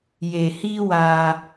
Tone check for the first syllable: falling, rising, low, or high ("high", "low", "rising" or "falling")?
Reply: low